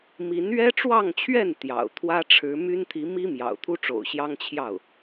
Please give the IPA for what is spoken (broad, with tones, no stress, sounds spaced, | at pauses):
m i˧˥ n ɥ ɛ˥ ʈ͡ʂ w ɑ˥˧ ŋ t͡ɕʰ ɥ ɛ˥˩ n t̪ j ɑ̰˨˩ ʊ̯ t̪ʰ w ä˥ ʈ͡ʂʰ ɻ̩˧˥ m y˥ n t̪ʰ i˧˥ m i˥ m j ɑ̰˨˩ ʊ̯ t̪ʰ u˥ ʈ͡ʂ o̰˨˩ ʊ̯ ɕ j ɑ˥ ŋ t͡ɕʰ j ɑ˥˩ ʊ̯